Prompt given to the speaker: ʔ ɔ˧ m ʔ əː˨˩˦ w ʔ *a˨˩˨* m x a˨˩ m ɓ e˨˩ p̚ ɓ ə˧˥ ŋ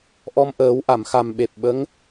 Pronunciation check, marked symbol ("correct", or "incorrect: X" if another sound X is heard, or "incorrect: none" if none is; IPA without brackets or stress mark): correct